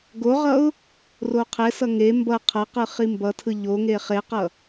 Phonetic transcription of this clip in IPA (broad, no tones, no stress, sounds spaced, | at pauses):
ɡ o ʁ ʌ ʊ̯ | r o qʰ ɛ s ʌ ŋ e m b ʌ qʰ ʌ q ɯ χ i m b ʌ tʰ ɯ ʎ o ŋ e χ e q ʌ